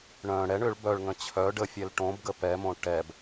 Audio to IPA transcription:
ɳ œ̃ ɽ ɛ ɳ ʏ ɭ b œ ɭ ŋ ə̃ t͡ɕʰ œ ɖ ə fʲ ɛ l ʈ õ b ɡ ə p ɛ m õ ʈ ɛ b

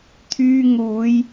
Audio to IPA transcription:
t̪ʰ yː˧ ŋ uː˨˧ j

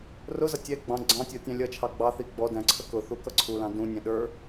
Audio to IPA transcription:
r ʊ z ʌ tʲ ɛ ɡ͡b ɑ̃ ɡ͡ǀ ɑ̃ tʲ ɔ tʲ ɑ̃ lʲ ʌ t͡ʃʰ ɑ ɡ͡b ɑ θ i ɡ͡b ɔ d æ̃ ǀʰ ə k ʊ θ u k ʌ ǀʰ u l ɑ̃ d ũ nʲ ɛ̃ ɗ ə˞

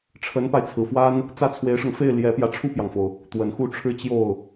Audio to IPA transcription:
ʈ͡ʂʰ ə˧˥ n p a˧ ɪ̯ t͡sʰ ɹ̩˨˩ f w a˥ n | t͡s ä˥˩ t͡sʰ w e˧˥ ɪ̯ ʂ ɤ˧ ŋ f e˥˩ ɪ̯ l j ɛ˧˥ p j ä˧ ʈ͡ʂʰ u˥˩ p j ɑ˩ ŋ f o˩ ʊ̯ | t̪ w ə˨˩ n x u˥˧ ʈ͡ʂʰ ɻ̩˥˧ t͡ɕ j o˥˩ ʊ̯

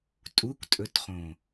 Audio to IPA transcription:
tʼ u kʷ tʼ ɵ t χ õ

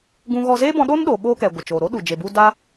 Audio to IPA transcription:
ɡ ũ˧ ɣ ɔ˧ z eː˦ b ɔ̃˧ ɗ oː˦ n ɗ oː˨ ɓ oː˧ k ɛ˨ ɡʷ ə˨ t͡ʃ oː˨ ɾ o˦ ɗ u˨ d͡ʒ e˨ b u˧ d a˦

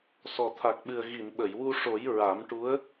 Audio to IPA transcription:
s ɔ˨˩ t̪ʰ a˨˩ k̚ ɓ ɨ˨˩ ə̯ ɣ i˨˩˨ n ɓ ə˨˩˨ j w u˧ ʂ o˨˩˦ j ɹ a˨˩˦ m ʈ u˧˥ ə̯

